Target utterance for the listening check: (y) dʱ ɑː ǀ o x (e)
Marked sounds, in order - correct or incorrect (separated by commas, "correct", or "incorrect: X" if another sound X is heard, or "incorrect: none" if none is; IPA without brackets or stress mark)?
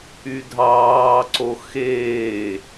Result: correct, incorrect: eː